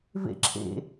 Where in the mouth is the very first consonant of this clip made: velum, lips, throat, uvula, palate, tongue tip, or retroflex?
lips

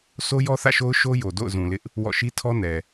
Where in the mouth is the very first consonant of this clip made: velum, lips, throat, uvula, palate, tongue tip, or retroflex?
tongue tip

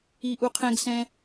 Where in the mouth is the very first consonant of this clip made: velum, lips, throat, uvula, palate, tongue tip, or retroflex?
throat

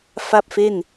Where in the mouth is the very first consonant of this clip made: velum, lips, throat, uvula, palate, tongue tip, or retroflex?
lips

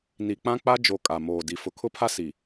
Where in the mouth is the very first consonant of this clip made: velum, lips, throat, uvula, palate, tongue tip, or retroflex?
tongue tip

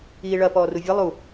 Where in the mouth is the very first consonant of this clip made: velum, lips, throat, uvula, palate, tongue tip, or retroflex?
retroflex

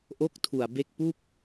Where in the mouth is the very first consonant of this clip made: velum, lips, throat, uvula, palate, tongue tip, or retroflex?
throat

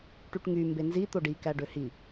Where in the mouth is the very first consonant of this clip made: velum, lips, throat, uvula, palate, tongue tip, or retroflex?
retroflex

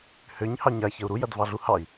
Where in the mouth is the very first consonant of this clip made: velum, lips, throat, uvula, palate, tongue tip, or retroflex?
throat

